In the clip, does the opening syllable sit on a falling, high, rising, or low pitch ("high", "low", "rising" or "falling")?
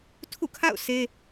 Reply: falling